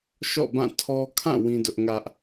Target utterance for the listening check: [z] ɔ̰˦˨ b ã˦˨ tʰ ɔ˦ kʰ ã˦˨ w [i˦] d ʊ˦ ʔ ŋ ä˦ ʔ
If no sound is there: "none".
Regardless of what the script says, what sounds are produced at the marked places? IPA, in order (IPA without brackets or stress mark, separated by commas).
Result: ʃ, ĩ˦